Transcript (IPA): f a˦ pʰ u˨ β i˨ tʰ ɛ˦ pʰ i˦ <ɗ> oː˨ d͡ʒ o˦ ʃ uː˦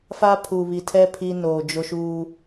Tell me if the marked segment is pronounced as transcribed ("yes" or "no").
no